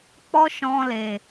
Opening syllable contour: high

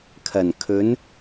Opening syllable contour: low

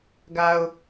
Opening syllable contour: low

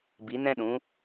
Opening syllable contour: rising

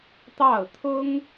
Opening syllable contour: falling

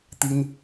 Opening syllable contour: high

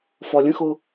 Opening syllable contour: low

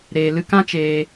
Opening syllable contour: low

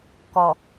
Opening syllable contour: low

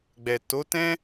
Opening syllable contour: low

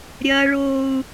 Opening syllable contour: high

